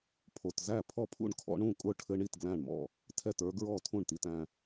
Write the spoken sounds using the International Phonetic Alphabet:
pʰo˨˩tzæ˥˩ pʰɔ˥˩pʰṵ˥˩ɳkʰɔ̰˦˥ɳ ũ˥˩kʼʊ˦˥ ʈʰɘ˦˥ɳ i˥˩t ɡlæ̃˥˩ɳmɔ̰˥˩ | tʰɛ˥˩tə˞˦˥ ɡɹɔ˥˩tʰũ˥˩ɳti˧t æ̃˧

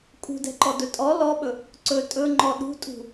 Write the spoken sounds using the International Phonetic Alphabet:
kʼṳdɛ̤ǃɔdɵ tʼɔ lɔɓɵ | ǀɵ tʼɵŋ͡ǃɔ ɗṳtʼṳ

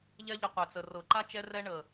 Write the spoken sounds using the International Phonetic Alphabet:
ʎɛ˦ʎə˧ qʷɛ˨t͡sə˨ rɤ˨ǃa˦ t͡ʃɛ˧rɛ˧ɳə˨

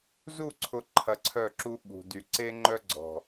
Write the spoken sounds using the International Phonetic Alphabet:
zu˦˨ǀʰʊ˨ ǃʰɐ˨ ǀʰœ˦˨ǁu˦ ɓṳ˨dy˨ ǀe˦ŋ͡ǃœ˦ɡ͡ǀɔ̤˨

